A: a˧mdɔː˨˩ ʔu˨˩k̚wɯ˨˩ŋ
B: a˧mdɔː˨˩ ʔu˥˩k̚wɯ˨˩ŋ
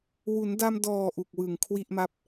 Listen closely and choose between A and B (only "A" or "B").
A